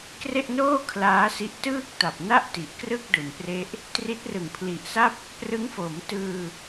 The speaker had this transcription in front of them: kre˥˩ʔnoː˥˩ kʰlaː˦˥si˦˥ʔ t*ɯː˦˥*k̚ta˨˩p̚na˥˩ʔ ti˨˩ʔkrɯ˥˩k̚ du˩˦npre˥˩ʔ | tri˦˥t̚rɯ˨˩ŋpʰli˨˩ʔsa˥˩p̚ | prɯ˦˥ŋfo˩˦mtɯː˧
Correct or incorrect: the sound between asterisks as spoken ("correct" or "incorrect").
incorrect